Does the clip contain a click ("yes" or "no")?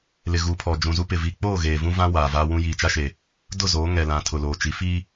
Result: no